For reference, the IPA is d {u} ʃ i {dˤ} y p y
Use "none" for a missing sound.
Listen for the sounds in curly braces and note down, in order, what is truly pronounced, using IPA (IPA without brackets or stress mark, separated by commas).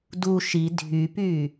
u, dʱ